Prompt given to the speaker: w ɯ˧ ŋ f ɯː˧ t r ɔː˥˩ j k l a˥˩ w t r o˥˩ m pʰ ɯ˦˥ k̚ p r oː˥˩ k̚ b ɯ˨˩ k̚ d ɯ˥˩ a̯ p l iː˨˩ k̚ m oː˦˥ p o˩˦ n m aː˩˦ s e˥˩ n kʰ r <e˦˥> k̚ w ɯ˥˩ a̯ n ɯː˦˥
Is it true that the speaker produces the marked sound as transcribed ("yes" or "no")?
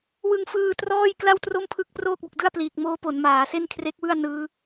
yes